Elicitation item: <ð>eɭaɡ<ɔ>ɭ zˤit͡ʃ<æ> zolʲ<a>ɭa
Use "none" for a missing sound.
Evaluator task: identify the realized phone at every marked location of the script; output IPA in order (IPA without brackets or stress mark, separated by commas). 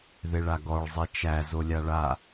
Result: ð, ɔ, æ, a